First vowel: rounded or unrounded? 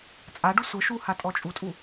unrounded